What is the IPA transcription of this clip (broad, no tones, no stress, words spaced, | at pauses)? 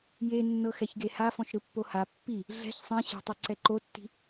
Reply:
je nːɤxɛçɡeha fɔ̃ʃɾɯpːoha pːi | ɮɛ̤ç sˤĩ ɕɛ̤tˤu ǀɛǃotːi̤